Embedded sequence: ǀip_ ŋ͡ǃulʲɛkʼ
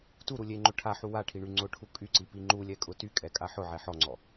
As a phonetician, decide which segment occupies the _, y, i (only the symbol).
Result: i